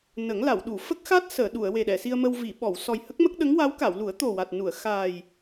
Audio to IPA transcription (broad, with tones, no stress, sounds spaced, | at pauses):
n ə˨˩˦ ŋ l a˨˩˨ w ɗ u˨˩˨ f ə˦˥ k̚ x a˦˥ t̚ s əː˨˩˨ ɗ u˨˩˨ ə̯ w e˨˩ ɗ ɛ˨˩˨ s i˧ ə̯ m ə˧ w v i˨˩˨ ɓ ɔ˨˩˨ w s ɔ˨˩ j h ə˦˥ k̚ m ə˦˥ k̚ ɗ ə˧˥ ŋ w a˧˥ w k a˨˩˨ w l u˨˩˦ ə̯ t̪ o˨˩ w a˨˩ t̚ n u˨˩˨ ə̯ x aː˨˩ j